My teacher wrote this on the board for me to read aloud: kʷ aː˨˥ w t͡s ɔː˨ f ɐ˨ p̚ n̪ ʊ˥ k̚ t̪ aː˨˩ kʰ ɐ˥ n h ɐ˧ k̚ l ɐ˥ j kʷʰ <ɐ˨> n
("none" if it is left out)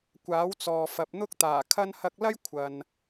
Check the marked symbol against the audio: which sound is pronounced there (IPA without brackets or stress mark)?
ɐ˨